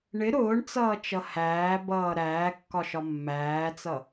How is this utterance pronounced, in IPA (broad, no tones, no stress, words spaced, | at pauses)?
ɳɪ ɾʊːɳt͡sʌːt͡ʃʌ hæːbʌː ɾæːkːɒʃɒ mːæːt͡sʌ